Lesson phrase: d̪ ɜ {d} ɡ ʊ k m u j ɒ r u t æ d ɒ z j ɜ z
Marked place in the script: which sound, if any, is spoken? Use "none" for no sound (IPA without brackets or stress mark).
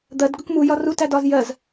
d